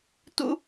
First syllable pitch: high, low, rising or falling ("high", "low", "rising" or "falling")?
high